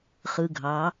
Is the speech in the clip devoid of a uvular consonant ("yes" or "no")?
no